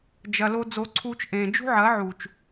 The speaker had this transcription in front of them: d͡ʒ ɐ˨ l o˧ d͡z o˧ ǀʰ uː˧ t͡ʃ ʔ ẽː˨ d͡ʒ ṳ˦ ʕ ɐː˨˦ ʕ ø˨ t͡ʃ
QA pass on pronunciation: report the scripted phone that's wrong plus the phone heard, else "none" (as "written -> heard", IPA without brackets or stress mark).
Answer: ø˨ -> u˨